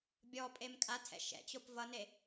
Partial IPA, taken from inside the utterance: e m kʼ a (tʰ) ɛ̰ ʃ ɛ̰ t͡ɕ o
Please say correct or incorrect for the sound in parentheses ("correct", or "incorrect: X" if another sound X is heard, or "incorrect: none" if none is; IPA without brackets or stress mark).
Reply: correct